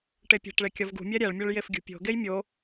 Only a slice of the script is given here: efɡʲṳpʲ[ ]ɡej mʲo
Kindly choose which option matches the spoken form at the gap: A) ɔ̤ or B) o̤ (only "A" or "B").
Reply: B